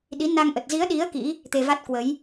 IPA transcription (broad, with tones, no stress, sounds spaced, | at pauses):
ɗ i˨˦ n a˧ ŋ ʔ ə˨˩ t̚ z i˨˦ ə̯ ɗ i˨˦ ə̯ k ḭ˧˥ | t̪ e˧ v a˦˥ t̚ k w ə˨˦ j